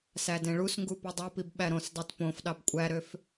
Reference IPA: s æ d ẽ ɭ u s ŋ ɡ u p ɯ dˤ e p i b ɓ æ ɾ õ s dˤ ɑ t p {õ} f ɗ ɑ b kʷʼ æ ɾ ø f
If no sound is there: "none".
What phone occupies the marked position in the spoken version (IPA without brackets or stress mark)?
õ